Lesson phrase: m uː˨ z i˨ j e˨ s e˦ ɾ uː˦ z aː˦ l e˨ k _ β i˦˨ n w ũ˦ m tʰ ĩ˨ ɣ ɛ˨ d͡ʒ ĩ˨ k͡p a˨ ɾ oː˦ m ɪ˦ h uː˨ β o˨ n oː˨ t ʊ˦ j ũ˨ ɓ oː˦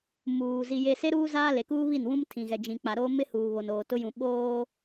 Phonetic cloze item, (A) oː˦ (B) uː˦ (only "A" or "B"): B